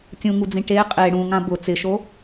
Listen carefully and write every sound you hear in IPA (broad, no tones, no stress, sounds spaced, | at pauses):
tʲ ũ ŋ u d͡z ĩ ʈ e qʼ e ɽ ũ ŋ ã b ʊ t͡s ɪ ʃ o